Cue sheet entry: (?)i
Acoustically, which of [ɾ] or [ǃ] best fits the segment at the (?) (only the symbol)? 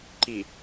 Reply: ǃ